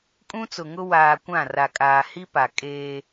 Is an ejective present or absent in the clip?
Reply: present